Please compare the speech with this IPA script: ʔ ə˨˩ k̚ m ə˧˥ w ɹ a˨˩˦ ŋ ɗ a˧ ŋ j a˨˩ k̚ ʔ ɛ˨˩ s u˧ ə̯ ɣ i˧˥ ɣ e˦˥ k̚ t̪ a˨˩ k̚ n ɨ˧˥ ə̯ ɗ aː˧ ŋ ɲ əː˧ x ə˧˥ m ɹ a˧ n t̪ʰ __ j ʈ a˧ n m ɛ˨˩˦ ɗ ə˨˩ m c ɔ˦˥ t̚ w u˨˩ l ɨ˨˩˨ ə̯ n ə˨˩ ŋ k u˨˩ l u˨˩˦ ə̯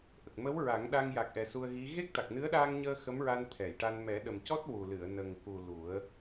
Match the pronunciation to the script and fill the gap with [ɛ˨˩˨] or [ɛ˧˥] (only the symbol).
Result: ɛ˨˩˨